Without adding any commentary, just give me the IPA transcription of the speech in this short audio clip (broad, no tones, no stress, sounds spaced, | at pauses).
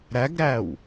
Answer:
ɾ æ ɡ ɾ æ w